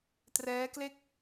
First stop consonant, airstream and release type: plain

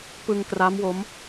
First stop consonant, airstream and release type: plain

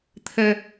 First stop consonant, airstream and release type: aspirated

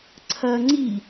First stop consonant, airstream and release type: click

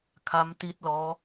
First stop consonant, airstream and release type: aspirated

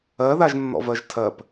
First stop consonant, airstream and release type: aspirated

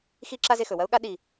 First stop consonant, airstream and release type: click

